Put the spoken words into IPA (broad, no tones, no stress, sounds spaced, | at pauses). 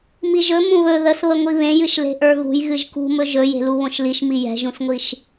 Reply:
m i ʒ ɵ m ũ β ɵ ð ə s β ə ŋʷ i β ẽ j ɨ ʃ l e̤ ʔ ə˞ ɣ ṳ j ɣ ɨ ʒ k ṳ m ɵ ʒ ɵ j e̤ l u β õ ʃ l i ʃ m i j ɛ̤ ʒ ũ s ŋʷ i ʃ